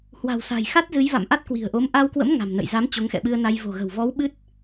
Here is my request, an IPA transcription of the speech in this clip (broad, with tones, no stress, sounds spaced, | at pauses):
h w a̤˨˩ w s a̤˨˩ j x a˦˥ t̚ z ɨ˨˦ j v a̰˧˨ m ʔ a˦˥ t̚ k w i̤˨˩ ə̯ ʔ o˨˦ m ʔ a˧ w k w ə̰˧˥ m ŋ a̤˨˩ m n ə̰˧˨ j z a˨˦ m t͡ɕ o˨˦ ŋ x ɛ̰˧˨ ɓ ɨ˧ ə̯ n a˧ j v o̤˨˩ ɣ ə̤˨˩ w v ɔ˨˦ w ɓ ɨ˦˥ t̚